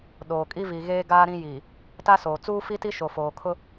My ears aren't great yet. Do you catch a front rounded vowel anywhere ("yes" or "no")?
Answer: no